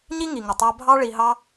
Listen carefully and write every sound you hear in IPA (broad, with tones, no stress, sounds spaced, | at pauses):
ɲ i˦ ŋ i˨ ŋ ə˨ tˤ æ˧ bʱ ɑ˦ ɭ i˧ ɦ ɑ˦